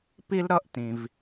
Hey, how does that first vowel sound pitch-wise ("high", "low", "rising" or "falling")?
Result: high